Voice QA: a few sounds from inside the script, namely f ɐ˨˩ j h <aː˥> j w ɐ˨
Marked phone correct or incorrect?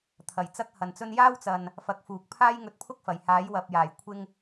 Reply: incorrect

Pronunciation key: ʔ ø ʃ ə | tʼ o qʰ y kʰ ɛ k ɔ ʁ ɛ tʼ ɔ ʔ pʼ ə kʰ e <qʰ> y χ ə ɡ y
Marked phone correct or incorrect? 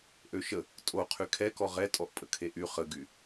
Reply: incorrect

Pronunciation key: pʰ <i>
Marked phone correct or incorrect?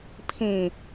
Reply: incorrect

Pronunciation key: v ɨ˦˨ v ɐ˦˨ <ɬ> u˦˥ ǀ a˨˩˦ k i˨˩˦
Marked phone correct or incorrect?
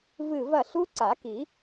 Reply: correct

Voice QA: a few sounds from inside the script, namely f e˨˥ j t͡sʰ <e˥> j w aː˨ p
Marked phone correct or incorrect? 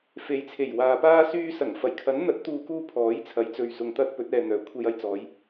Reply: incorrect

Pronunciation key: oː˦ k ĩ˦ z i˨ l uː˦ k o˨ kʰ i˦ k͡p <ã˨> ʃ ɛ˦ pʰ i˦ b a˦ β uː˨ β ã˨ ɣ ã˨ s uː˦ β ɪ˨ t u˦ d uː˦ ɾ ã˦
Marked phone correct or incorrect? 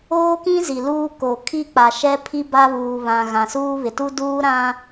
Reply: incorrect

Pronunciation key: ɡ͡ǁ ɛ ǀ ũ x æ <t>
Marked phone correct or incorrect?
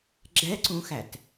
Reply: correct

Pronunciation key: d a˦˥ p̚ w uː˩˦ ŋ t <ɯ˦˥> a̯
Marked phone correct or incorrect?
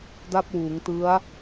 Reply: correct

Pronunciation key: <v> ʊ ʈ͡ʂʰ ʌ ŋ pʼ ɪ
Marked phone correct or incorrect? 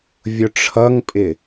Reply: incorrect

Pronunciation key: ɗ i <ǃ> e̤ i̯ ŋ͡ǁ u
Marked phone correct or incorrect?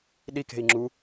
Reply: incorrect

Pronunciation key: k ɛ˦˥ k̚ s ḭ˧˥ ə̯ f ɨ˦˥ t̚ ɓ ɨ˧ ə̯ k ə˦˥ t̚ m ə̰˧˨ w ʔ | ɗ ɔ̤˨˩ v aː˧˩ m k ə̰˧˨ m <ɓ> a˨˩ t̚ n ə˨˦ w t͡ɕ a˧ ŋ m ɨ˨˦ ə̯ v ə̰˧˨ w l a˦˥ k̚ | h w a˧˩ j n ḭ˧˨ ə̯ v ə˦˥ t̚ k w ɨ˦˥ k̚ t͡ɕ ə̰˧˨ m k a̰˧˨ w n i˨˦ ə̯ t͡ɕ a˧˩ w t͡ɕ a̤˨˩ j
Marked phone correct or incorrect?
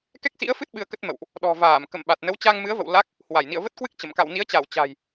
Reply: correct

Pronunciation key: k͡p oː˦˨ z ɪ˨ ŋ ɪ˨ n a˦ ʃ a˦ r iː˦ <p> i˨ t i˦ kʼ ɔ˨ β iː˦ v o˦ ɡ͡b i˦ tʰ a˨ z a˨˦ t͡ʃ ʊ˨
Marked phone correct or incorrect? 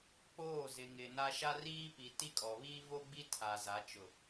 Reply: correct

